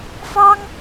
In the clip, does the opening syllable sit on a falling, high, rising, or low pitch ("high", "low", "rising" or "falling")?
high